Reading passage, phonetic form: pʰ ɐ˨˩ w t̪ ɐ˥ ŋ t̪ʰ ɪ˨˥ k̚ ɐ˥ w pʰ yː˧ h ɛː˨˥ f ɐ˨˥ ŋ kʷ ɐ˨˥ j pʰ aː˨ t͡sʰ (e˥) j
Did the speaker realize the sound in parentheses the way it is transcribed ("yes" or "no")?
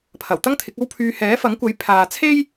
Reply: yes